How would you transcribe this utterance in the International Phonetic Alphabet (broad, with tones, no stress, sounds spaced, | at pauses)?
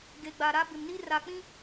ɡ e˨ ɡ͡b a˨ ɾ a˦ b ɪ˨ m n i˦ r a˨ k͡p ĩ˦